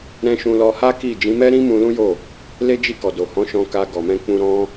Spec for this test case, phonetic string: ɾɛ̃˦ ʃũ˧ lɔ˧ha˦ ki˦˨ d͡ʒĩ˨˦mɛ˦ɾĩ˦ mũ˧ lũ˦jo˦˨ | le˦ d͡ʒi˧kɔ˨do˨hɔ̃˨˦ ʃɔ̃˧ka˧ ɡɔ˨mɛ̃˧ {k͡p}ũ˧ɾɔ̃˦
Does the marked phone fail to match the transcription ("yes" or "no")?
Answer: no